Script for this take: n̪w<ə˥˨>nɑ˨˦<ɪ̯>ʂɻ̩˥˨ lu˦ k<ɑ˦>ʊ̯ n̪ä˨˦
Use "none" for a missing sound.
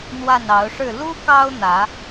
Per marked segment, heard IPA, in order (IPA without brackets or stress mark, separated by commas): a˥˨, ʊ̯, ɑ˦